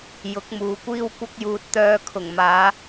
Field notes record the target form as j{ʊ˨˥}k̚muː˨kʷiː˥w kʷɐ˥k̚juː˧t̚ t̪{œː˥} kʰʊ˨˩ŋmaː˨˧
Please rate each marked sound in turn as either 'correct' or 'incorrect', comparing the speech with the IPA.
correct, incorrect: œː˧

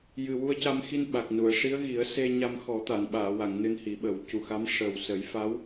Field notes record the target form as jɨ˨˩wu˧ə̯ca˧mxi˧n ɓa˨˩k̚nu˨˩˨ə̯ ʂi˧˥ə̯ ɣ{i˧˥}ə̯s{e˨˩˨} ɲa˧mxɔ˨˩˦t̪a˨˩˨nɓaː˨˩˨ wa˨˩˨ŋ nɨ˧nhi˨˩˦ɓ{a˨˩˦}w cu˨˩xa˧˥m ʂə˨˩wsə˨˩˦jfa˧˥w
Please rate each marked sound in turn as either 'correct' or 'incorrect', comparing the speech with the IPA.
incorrect: i˨˩˦, incorrect: e˧, incorrect: ə˨˩˦

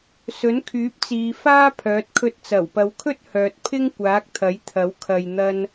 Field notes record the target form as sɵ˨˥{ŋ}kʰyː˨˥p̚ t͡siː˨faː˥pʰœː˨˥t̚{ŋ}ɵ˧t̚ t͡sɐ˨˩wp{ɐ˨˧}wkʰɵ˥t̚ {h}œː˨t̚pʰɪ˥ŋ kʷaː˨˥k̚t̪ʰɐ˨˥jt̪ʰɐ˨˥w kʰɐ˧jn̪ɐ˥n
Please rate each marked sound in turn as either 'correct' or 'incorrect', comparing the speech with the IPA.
incorrect: n, incorrect: kʰ, correct, correct

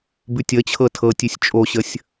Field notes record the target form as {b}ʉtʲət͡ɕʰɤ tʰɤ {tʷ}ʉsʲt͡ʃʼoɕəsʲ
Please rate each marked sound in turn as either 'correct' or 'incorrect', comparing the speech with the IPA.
correct, incorrect: tʲ

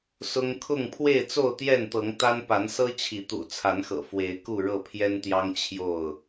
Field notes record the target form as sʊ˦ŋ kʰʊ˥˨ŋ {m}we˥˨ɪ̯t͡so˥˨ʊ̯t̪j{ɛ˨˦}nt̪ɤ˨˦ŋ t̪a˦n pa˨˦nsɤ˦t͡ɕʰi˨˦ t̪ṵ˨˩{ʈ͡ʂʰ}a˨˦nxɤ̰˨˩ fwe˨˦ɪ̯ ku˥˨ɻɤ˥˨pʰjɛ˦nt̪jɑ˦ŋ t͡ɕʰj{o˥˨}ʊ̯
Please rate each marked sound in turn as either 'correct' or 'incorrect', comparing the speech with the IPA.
incorrect: pʰ, incorrect: ɛ˥˨, incorrect: t͡sʰ, correct

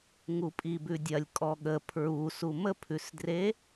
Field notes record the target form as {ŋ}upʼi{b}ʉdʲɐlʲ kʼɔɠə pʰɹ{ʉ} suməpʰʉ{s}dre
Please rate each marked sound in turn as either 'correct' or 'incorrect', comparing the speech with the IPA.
correct, correct, incorrect: u, correct

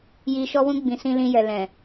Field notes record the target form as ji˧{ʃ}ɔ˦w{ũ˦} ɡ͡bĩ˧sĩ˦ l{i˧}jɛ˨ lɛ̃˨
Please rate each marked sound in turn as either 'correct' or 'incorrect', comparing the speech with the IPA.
correct, correct, incorrect: ĩ˧

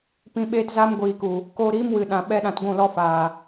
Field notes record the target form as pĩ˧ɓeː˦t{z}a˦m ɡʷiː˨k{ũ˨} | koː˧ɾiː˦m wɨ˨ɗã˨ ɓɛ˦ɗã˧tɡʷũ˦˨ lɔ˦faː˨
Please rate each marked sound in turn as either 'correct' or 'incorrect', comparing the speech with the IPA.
correct, incorrect: u˨

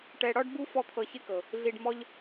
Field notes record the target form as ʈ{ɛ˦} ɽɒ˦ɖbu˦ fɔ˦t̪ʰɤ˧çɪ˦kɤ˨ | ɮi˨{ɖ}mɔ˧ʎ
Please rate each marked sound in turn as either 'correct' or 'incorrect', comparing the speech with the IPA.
incorrect: ɛ˧, correct

